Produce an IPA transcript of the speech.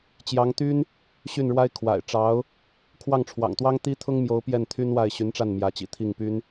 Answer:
t͡ɕ j ɑ˧˥ ŋ t̪ y˥ n | ɕ y˥˩ n ɻ w a˥ ɪ̯ kʰ w a̰˨˩ ɪ̯ ʈ͡ʂ ɑ˧˥ ʊ̯ | kʰ w ɑ˥˩ ŋ ʈ͡ʂʰ w ɑ̰˨˩ ŋ t̪ w ɑ˥ ŋ t̪ i˥ t̪ʰ ʊ˥ ŋ m j o˧˥ ʊ̯ p j ɛ˥˩ n t̪ʰ y˥ n w a˥˩ ɪ̯ ɕ y˧˥ n ʈ͡ʂ a˥˩ n m j ä˧˥ t͡ɕ ḭ˨˩ t̪ʰ i˥˩ ŋ p y˥ n

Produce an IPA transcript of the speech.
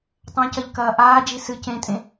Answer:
tˤ ɐ̃ c ɐ ʎ k ɐː ʔ aː d͡ʒ i s ɨ c ẽ tʼ ẽ

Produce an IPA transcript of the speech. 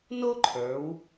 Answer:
n o˥ ǃʰ ə˞˩˧ w

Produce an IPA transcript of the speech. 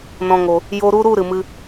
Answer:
n ɔ̃˨ ŋ o˨ | j o˧ ɾ u˧ ɾ u˦˨ ɾ ɨ˨ m ɨ˧

